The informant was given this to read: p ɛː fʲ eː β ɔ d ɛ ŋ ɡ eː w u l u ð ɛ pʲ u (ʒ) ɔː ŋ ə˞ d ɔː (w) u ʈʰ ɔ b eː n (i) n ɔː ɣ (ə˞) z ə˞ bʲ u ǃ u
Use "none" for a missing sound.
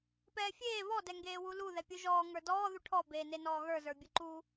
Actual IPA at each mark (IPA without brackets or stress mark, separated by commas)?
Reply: ʒ, ð, e, ə˞